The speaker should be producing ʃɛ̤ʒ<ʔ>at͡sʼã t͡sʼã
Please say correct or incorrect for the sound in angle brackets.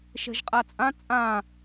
incorrect